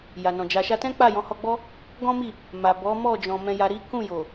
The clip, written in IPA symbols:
j a˨ n ɔ̃˨ d͡ʒ a˨ ʃ a˧ t ɛ̃˦ k͡p a˦˨ j ɔ̃˨˦ h ɔ˧ ɡ͡b ɔ˦ | ɡ ɔ̃˦ m i˦˨ | m a˨ b ɔ˨˦ m ɔ˦˨ d͡ʒ ɔ̃˨ m ɛ̃˧ j a˧ ɾ i˦ k ũ˦˨ j o˨

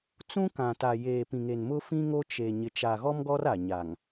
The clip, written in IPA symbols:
t͡s ũ˦ k ã˨ t a˨ j eː˨ p ĩ˨ ŋ e˨ n m ʊ˦ f ĩ˦ ŋ o˦ t͡ʃ e˨ ɲ ɪ˨ t͡ʃ a˨ ɣ ɔ˦ m ɡ ɔ˦ r a˨ ɲ a˨ ŋ

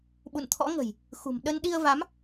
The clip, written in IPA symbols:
ɓ ṵ˧˨ n t̪ʰ ɔ̰˧˥ ŋ ə̤˨˩ j | x ṳ˨˩ m ɗ ə˧ n ɗ i˧ ə̯ v a˨˦ m

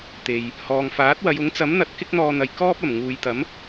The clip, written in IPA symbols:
t̪ e˨ j | h ɔː˨ ŋ f aː˨˥ t̚ w ɐ˨˧ j ʊ˨˥ ŋ t͡s ɐ˨˥ m n̪ ɐ˨˥ t̚ k ɪ˥ k̚ n̪ ɔː˧ n̪ ɐ˨ j k ɔː˥ p̚ ɐ˨˩ m ŋ uː˨ j t̪ ɐ˨˥ m

